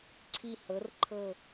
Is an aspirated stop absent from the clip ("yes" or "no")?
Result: no